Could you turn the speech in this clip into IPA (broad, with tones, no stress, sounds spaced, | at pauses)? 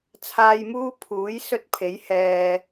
t͡sʰ aː˧ j m uː˥ pʰ uː˨˥ j s ɵ˥ t̚ pʰ e˨˥ j h ɛː˧